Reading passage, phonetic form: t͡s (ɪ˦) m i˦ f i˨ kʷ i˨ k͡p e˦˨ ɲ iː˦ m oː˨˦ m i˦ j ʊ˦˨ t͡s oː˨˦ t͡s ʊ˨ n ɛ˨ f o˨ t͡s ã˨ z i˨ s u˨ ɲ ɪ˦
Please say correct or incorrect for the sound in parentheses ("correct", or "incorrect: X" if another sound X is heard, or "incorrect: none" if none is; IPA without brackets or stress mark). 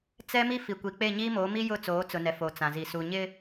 incorrect: ɛ˦